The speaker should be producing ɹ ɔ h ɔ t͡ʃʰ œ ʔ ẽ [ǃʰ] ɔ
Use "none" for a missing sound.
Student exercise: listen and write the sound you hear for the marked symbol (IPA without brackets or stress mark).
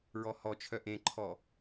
ǃʰ